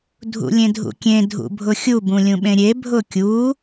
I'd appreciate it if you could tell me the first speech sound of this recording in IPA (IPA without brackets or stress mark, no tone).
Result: dʱ